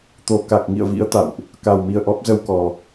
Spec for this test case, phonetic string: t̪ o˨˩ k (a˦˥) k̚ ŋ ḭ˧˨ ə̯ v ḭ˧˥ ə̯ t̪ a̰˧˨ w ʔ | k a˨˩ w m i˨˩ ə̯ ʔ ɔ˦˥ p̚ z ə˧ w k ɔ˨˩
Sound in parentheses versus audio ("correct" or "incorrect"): incorrect